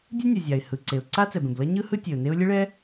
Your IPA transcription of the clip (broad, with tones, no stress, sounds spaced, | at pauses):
dʲ u˥ nʲ ʌ˩ zʲ a˩ ɪ̯ h ɯ˩ ǀ e˩ ʊ̯ ǀ a˥ t͡s ɛ˩ b ẽ˩ b l ʌ˥ ɲ ɯ˥ h ɯ˥ tʲ e˩ ʊ̯ n e˥ ʊ̯ lʲ ɯ˥ ɭ ɛ˥